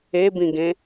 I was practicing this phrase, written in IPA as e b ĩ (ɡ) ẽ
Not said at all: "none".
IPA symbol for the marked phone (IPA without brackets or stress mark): ɡ